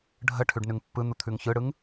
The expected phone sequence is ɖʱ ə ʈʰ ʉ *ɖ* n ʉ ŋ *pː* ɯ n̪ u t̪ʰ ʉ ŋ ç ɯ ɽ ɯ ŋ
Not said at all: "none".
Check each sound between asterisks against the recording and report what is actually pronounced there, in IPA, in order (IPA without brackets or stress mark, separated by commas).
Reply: ɖ, pː